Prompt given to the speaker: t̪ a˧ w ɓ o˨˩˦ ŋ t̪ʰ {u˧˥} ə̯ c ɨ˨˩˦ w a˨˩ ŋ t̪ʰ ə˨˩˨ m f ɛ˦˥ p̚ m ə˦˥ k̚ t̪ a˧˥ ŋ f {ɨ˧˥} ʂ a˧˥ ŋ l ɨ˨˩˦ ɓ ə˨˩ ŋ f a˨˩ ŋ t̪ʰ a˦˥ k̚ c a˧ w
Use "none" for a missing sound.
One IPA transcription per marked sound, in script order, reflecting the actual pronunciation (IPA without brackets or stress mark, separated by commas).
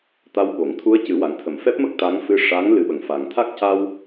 u˧˥, ɨ˧˥